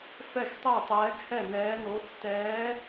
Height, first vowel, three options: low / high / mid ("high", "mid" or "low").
mid